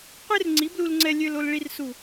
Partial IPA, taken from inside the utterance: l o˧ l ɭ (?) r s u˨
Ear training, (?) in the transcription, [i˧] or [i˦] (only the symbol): i˧